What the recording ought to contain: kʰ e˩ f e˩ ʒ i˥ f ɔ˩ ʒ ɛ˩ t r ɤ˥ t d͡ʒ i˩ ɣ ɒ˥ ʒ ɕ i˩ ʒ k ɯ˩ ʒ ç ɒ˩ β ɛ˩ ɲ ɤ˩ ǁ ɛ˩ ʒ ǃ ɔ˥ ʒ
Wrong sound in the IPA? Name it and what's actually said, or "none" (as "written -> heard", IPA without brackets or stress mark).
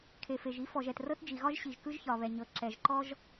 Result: ɯ˩ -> ɯ˥